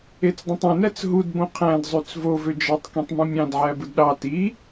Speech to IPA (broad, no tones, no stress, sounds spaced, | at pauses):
e t͡s dˤ ĩ tˤ ẽ n æ t͡s ɦ u d b õ qʰ æ̃ d zˤ y t͡s v o v ø d͡ʒ ɑ tˤ k ĩ tˤ m ũ mʲ ɑ̃ d ʕ æ b ɯ d ɗ ɑ t i